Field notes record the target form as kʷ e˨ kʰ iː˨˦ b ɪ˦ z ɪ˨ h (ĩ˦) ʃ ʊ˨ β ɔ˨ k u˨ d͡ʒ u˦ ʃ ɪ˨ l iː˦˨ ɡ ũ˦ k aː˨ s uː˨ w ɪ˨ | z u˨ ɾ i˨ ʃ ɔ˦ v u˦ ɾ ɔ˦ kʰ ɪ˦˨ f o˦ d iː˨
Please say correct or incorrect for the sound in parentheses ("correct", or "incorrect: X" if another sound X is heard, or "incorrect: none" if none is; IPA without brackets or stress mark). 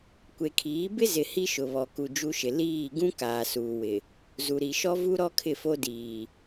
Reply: incorrect: i˦